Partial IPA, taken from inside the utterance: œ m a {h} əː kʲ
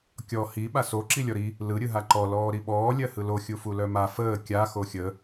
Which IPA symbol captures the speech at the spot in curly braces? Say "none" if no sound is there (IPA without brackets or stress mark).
f